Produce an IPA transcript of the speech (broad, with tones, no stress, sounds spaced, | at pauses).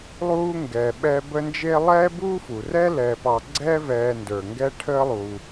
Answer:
lˠ uː˥ ŋ ɡ ɛː˨ ɓ ɛ˦ b ə˦ n d͡ʒ e˦ lˠ ɛː˥ b uː˥ f u˩ r ɛ˥ l ɛ˨ p ɑ˨ ɡ͡ǀ ɛː˦ v ɛː˨ n d ə˞˩ ŋ ɡ ɛ˦ ʈʰ əː˦ lˠ uː˩